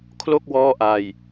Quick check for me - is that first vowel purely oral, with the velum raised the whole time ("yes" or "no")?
yes